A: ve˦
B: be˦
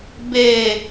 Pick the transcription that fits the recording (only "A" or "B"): B